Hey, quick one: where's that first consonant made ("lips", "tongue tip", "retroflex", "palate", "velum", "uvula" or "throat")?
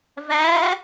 lips